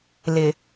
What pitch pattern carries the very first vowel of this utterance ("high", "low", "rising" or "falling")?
low